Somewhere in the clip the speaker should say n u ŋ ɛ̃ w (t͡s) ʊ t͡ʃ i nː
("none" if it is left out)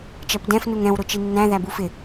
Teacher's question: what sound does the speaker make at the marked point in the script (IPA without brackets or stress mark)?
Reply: ɾ